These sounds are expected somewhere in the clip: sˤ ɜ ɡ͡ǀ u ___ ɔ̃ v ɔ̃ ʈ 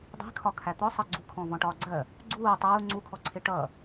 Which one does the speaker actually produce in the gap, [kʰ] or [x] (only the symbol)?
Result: kʰ